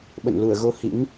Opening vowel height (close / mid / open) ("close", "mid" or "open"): mid